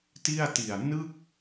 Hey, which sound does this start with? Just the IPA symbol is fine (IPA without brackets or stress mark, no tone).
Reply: t